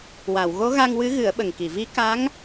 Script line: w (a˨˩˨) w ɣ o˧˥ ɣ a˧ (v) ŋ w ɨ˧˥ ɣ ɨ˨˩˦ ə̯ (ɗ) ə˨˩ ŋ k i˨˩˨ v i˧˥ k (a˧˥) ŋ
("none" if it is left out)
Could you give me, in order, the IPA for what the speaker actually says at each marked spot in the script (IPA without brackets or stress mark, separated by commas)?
a˨˩˨, none, ɓ, a˧˥